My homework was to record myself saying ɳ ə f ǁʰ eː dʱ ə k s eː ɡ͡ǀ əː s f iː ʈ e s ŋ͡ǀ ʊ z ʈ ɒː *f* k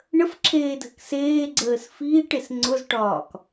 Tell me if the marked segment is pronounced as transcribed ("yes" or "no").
no